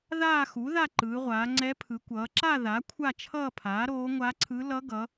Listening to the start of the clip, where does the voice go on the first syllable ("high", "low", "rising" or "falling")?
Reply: falling